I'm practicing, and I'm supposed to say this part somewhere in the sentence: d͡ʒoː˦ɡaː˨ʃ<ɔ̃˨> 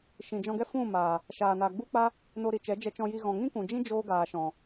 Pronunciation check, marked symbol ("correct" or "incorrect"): correct